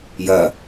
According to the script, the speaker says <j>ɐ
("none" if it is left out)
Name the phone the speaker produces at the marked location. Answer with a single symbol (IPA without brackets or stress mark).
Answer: j